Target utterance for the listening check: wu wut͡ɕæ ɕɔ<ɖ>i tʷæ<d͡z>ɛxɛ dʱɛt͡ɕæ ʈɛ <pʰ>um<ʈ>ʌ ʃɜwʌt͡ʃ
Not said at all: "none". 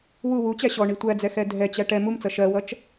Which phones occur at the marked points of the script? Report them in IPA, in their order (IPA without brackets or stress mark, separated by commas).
ɳ, d͡z, m, t͡s